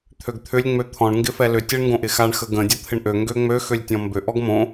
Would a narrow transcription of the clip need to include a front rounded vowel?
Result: yes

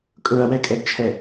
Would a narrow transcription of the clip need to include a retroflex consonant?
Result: no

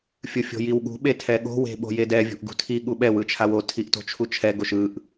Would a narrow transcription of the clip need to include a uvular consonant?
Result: no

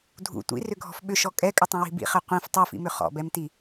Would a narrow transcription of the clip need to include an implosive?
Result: yes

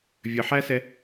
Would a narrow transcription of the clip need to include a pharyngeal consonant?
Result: yes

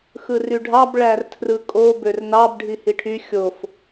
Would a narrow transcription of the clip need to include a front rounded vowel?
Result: yes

